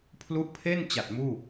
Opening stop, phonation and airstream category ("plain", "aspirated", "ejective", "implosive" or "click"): aspirated